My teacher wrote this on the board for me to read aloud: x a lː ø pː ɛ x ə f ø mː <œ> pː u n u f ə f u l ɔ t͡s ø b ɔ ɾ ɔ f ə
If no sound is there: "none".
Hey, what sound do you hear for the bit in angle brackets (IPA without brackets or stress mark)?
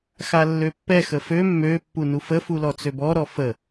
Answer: ø